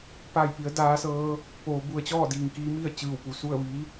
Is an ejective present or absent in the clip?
absent